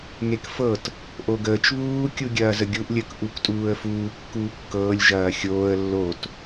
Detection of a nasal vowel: absent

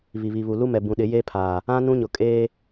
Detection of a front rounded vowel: absent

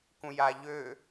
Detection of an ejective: absent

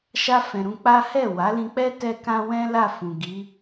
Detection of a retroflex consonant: absent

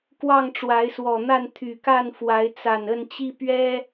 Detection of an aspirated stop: present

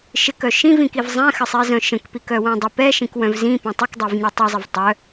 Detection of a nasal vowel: present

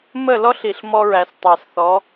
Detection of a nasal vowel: absent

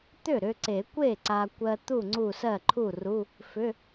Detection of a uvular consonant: absent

